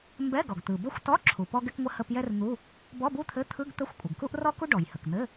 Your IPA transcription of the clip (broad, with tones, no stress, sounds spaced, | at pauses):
m b ɛ˧˥˧ ɡ ɔ˩ ɡ t̪ ɯ˩ b ə˥ xʷ t ɔ˧˥˧ ǁʰ u˩ p ɔ˥ ɡ ɛ˥ k ŋʷ ə˥ h ə˧˥˧ p j ɛ˥ r n̪ u˧˥˧ | b ɔ˧˥˧ b u˥ t̪ʰ ɘ˧˥˧ t̪ʰ ɯ˧˥˧ ɡ t̪ ə˧˥˧ xʷ kʷʼ ɘ˩ ɡ k u˥ ʔ r ɔ˥ k u˥ ɖ ɔ˩ j h ə˩ k n̪ ɘ˧˥˧